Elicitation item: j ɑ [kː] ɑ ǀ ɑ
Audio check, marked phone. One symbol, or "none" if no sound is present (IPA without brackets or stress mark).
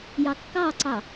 kː